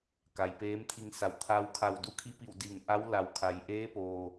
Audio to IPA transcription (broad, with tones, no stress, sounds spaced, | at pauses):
k a˩ j p eː˧˥ m t̪ʰ i˧ ŋ s a˩˧ w t̪ʰ a˧ w kʰ a˧˩ w d u˧˥ kʰ i˧˥ p i˧˩ w d i˧˩ ŋ ʔ a˧˥ w l a˩ w kʰ a˩ j ʔ eː˧˥ p oː˩